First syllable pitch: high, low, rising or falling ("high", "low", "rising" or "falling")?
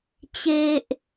high